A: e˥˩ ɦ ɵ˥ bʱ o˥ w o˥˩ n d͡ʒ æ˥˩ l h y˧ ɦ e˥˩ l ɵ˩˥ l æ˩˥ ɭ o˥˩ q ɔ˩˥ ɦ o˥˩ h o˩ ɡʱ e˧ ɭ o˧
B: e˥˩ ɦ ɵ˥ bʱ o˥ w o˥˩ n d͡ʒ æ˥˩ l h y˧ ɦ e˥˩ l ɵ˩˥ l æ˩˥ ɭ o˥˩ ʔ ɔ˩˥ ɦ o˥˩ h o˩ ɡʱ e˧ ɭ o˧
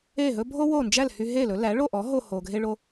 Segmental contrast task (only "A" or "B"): B